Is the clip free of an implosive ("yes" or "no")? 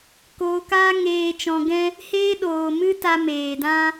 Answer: no